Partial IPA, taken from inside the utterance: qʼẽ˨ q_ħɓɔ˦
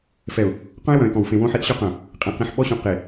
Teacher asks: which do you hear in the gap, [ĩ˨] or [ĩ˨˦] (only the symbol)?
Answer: ĩ˨